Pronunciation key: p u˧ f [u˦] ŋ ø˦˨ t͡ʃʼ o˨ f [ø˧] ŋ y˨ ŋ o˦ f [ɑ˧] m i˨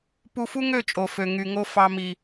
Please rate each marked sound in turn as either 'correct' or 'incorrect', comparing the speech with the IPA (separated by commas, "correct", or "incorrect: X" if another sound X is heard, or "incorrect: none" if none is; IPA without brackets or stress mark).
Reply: correct, incorrect: ø˨, correct